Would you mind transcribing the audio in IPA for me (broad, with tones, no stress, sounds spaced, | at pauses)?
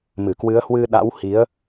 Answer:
m ɨ˧˩ k w ɨ˨˦ ə̯ h w ɨ˧ ɗ a̰˧˥ w h i˨˦ ə̯